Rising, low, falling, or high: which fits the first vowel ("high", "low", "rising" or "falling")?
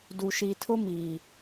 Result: low